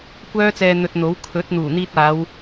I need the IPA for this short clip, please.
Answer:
kʷ œː˥ t͡s ɛː˧ n̪ ɵ˧ t̚ n̪ o˨˥ w kʰ ɵ˨˥ t̚ n̪ uː˨˩ n̪ iː˧ t̚ aː˨˧ w

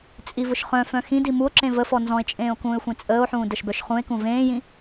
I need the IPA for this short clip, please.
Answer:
t͡sʼ i v ʊ ʃ χ œ̃ f œ̃ x ĩ d i m u o̯ ǁ ẽ v ə f ɔ n z ɔ̃ e̯ t͡ʃʼ ẽː o̯ k ũː e̯ xʷ ẽ t͡sʼ əː o̯ ħ ũː d ə ʃ b œ ʃ χ ũ e̯ k ũ v ẽː j ĩ

